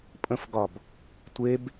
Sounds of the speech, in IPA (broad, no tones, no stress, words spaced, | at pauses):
pʼə̃fɡɒb | tʷeb